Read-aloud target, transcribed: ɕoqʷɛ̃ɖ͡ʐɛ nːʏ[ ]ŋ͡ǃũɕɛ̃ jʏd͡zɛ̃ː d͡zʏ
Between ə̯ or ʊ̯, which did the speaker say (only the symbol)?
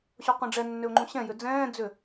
ʊ̯